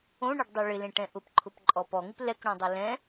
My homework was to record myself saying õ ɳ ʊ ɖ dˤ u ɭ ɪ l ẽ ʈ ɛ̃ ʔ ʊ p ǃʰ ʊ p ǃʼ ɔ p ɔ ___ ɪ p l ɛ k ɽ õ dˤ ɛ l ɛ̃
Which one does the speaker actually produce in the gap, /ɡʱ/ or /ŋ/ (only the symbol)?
ŋ